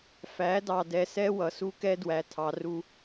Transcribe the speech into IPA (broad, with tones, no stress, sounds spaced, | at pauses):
f æ˨˦ d ɑ˨ d ɛ˨ s ɛ˦ w ʌ˨ s u˦ k ɛ˦ d w æ˨ tʰ ɑ˨ r u˦